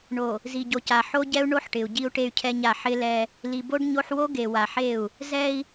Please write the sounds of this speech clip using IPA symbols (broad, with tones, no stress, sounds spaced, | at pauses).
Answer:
ɳ o˨ | z i˨ ɟ o˨ c a˨ ħ o˦ ɟ ɛ˦ u̯ ɳ o˦ ħ ʈ ɪ˨ u̯ ɟ i˦ u̯ ʈ e˦ y̯ cʰ ɛ˦ ɲ a˦˨ ħ ɪ˦ l ɛ˦ | l i˨ b o˦ ɖ ɲ o˦ ħ w o˦ ɡ e˨ w a˨ ħ e˦˨ u̯ | z ɛ˦ i̯